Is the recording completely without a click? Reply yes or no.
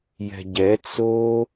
yes